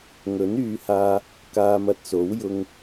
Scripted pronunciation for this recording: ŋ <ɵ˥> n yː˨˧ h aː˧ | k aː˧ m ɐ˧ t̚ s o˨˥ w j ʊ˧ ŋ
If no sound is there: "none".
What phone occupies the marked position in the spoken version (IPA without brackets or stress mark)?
ɵ˨˥